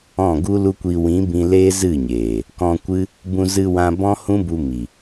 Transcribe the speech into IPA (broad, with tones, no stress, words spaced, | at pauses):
ɔ̃˦˨ɡu˦lu˦kʷi˧ wĩ˨˦bĩ˧ leː˦zɨ˦˨ɲeː˨ | kɔ̃˧kʷɨ˦ | bũ˧zɨ˧wã˧ bɔ̃˦hũ˦bu˧ mi˨